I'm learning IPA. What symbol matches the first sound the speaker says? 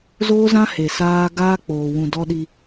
z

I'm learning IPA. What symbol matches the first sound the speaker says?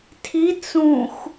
tʰ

